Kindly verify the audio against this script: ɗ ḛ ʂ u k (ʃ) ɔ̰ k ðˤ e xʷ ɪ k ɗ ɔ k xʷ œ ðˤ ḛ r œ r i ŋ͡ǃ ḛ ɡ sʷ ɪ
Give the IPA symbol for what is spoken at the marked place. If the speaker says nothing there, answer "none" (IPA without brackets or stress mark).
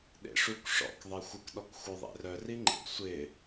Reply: ʂ